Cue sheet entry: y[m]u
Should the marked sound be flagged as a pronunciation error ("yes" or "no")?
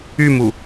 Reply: no